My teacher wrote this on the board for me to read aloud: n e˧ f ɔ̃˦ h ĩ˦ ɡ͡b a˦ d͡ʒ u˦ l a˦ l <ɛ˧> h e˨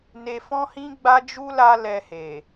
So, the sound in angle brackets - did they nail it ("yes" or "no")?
yes